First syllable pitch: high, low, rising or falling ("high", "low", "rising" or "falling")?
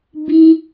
high